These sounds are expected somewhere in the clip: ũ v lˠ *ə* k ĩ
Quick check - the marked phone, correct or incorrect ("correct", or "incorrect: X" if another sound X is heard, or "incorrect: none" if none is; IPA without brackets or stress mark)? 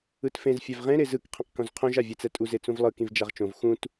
incorrect: ɯ